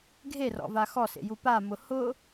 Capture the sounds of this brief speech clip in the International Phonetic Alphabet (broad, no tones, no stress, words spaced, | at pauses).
ɡʱerɔ̰va xɔsḛju pamʊ hʊ